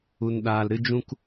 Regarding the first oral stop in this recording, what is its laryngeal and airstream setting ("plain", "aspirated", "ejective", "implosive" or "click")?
implosive